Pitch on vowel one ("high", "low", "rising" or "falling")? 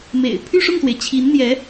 low